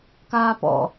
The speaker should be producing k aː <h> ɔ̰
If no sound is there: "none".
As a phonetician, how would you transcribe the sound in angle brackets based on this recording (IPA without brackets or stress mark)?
p